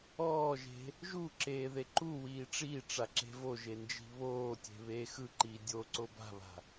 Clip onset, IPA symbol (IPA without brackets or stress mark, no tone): ɔː